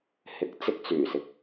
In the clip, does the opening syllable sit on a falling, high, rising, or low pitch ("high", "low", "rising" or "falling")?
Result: rising